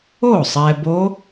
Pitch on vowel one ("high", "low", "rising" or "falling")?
falling